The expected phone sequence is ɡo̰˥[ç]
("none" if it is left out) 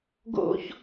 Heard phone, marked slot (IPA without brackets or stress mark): ç